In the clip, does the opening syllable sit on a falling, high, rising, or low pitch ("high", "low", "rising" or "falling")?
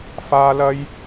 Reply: high